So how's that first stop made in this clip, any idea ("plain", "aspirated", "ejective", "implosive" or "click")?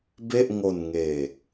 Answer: plain